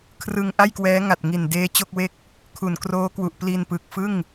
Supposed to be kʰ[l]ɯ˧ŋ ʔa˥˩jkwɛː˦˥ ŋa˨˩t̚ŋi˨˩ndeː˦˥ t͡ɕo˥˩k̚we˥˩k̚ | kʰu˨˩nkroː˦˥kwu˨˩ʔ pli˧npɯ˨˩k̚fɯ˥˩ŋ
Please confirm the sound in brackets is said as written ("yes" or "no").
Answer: no